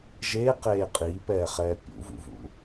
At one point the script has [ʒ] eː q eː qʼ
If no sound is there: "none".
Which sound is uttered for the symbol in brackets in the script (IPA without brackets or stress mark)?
ʒ